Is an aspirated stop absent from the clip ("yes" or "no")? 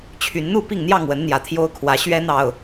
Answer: no